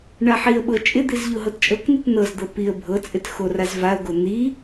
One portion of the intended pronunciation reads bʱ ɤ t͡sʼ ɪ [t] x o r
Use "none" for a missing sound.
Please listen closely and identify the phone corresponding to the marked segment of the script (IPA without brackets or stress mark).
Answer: t